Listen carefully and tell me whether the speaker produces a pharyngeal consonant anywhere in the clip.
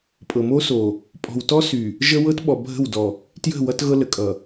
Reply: no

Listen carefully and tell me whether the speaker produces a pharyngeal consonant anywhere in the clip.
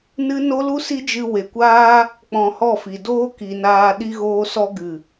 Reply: no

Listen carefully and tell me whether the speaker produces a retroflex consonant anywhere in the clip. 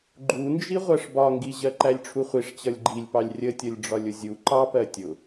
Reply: yes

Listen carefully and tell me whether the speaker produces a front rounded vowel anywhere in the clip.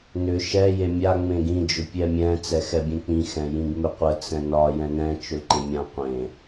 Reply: yes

